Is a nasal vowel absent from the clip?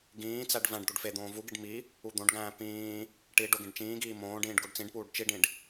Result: no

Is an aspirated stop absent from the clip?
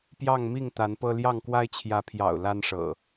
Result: no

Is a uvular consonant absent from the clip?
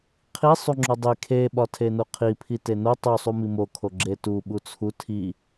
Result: no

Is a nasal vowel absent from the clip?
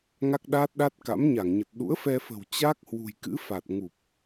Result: yes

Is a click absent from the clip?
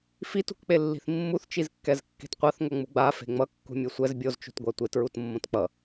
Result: yes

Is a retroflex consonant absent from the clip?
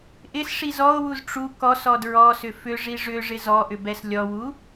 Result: no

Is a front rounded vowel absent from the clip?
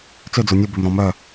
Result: no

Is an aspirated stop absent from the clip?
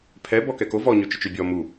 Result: no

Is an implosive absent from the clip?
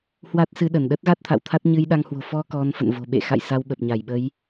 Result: no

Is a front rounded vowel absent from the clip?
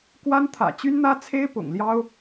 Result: no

